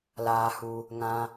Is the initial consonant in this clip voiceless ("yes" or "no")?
no